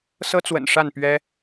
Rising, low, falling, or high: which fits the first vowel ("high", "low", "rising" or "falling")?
high